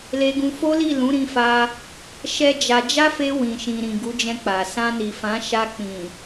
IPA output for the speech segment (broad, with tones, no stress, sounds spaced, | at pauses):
l e˧ ɡ ũ˧ f o˦ l i˦˨ l ũ˨˦ ɾ ĩ˧ f a˧ | ʃ ɛ˦ d͡ʒ a˧ d͡ʒ a˦ f e˧ w ĩ˨ ʃ ĩ˨ ɾ ĩ˨ ɡ u˨˦ d͡ʒ ɛ̃˧ k͡p a˨ s ã˧ n i˨ f ã˨˦ ʃ a˧ k͡p ĩ˨